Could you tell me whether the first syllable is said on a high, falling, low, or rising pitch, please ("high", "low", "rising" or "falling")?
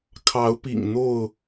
rising